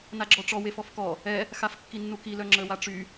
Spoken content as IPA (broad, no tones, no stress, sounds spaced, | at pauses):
n a ɡ͡ǁ ɔ ʈ͡ʂ ɔ w e f ɔ f k ɔ | ɛ | x a f kː i nː u k i l œ ŋ͡ǁ ə w a ʈ͡ʂ y